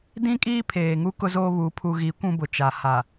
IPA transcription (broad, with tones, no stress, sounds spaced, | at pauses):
d ĩ˦ kʼ iː˦ pʰ eː˨ ŋ u˦ k ʊ˦ z oː˦ β u˨˦ pʰ u˨ ɣ i˨˦ kʷ ũ˦ b ʊ˨ t͡ʃ a˨ h a˨